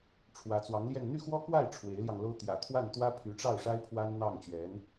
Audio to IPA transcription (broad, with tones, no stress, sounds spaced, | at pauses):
ʈ͡ʂʰ w ä˧˥ t͡s w ɑ˧˥ ŋ l j ɛ˥˧ n n̪ y˥˩ x w ɔ˥ k w a˥˩ ɪ̯ ʈ͡ʂʰ w e˧˥ ɪ̯ l j ɑ˧ ŋ l o˥ ʊ̯ t̪ j ä̰˨˩ t̪ʰ w a˥˩ n t̪ w ä˥ pʰ y˧˥ ʈ͡ʂ ɑ˥˩ ʊ̯ ʂ a˥ ɪ̯ pʰ w a˥ n n̪ ɑ˥˩ ŋ t͡ɕ ɥ ɛ˧˥ n